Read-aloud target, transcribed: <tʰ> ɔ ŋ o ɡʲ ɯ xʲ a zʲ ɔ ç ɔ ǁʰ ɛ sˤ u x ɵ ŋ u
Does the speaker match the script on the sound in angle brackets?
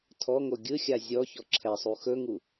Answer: yes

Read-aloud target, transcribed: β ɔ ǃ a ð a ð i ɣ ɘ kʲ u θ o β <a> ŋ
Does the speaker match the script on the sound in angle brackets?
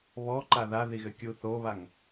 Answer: yes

